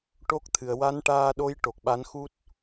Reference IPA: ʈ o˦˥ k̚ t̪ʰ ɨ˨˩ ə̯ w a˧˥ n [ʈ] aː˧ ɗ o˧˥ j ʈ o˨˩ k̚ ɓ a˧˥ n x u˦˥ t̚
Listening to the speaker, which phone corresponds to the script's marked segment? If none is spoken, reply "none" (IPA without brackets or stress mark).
ʈ